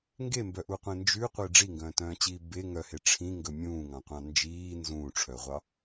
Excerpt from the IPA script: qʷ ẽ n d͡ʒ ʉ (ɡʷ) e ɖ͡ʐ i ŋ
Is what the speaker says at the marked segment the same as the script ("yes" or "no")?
no